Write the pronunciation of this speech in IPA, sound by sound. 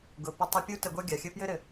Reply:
ɡ ʊ˩ p ə˧ tˤ i˧ pʲ u˥ t ə˧ ɡʷ ʌ˥ ɡʲ a˩ xʲ ɘ˥ p j ɘ˥ ɾ ɘ˩

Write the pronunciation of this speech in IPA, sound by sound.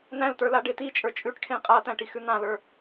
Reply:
n̪ æ̃ l t̪ ə˞ l a ɖ e t̪ i t͡ʃʼ ə˞ t͡ʃʼ ʉ ʈ kʰ ẽ qʼ a t̪ æ̃ ʈ i x ʉ n̪ ã l ə˞

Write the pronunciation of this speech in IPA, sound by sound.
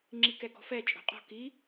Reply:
ŋ͡ǁ i k ɛ ɡ ɔ̤ f ɛ t͡ʃʼ o̤ qʼ ɔ̤ k i

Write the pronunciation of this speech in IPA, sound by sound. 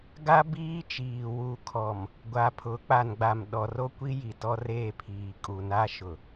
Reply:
ɡ a˦ b iː˦ t͡ʃ iː˨ w u˨ kʰ ɔ˨ m | ɡʷ a˨ pʰ ʊ˨˦ k͡p a˨ n ɡ͡b a˨ m ɗ ɔ˨ r o˦ kʷ i˦ j i˨ t ɔ˦ r eː˦˨ pʰ iː˨ kʼ u˨ n a˦ ʃ ʊ˨

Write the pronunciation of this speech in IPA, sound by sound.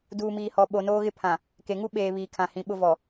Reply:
d uː˨ m iː˨ h ɔ˨ ɓ o˨ n oː˦ ɣ ɪ˦ pʰ ã˨ | k e˨ ŋ u˦ ɓ eː˨ β iː˨ kʰ ã˨ h ĩ˨ ɓ ʊ˦ v ɔ˨

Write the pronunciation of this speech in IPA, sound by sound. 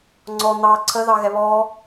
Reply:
ŋ͡ǀ ɔ n̪ ɑ ǀʰ ə ð ɑ ɣ ɛ β ɔ

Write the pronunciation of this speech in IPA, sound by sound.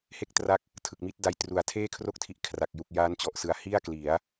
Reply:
h e˥˩ k̚ t r a˦˥ k̚ | tʰ ɯ˨˩ k̚ m i˦˥ t̚ d a˧ j t r u˩˦ a̯ tʰ eː˥˩ kʰ r o˥˩ k̚ tʰ i˦˥ ʔ kʰ r a˨˩ k̚ j u˨˩ k̚ j aː˦˥ n t͡ɕ ɔ˨˩ ʔ s ɯ˨˩ a̯ h i˥˩ a̯ k l i˩˦ a̯

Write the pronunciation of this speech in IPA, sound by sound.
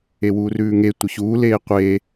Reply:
e w uː r ʉː ŋ e tʷ ə ç uː l eː qʷ e

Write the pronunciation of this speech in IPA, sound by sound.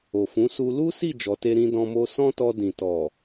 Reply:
o˨ f ũ˨˦ s u˧ l u˦ s i˦˨ d͡ʒ ɔ˨˦ t e˦ ɾ ĩ˧ d ɔ̃˧ m o˧ s ɔ̃˦ t ɔ˧ d ĩ˨ t ɔ˨

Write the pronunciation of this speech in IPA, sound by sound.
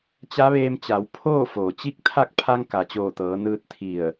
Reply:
t͡ɕ a˧˥ ʋ eː˧ m t͡ɕ a˩˧ w pʰ oː˥˨ f oː˩ t͡ɕ i˥˨ k̚ t̪ʰ a˥˨ k̚ pʰ a˧ ŋ k a˩ t͡ɕ oː˧˩ t̪ ɤː˩˧ n ɯː˧ t̚ t̪ʰ i˧˩ ə̯

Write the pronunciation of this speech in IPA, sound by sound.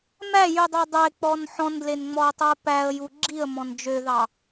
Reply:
m æ j y dˤ ɑ dˤ e k͡p ɔ n ħ ɔ̃ n d l e n ŋ͡m ɔ ə̯ tˤ u ə̯ p æ ə̯ j u ɡ͡ǁ i ə̯ m ɔ̃ n d͡ʒ ø ð ɑ

